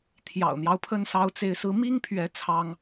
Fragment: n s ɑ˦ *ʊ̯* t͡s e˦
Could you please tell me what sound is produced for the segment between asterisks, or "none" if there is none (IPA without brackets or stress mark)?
ʊ̯